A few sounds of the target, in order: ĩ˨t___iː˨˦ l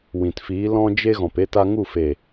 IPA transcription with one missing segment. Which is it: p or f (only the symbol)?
f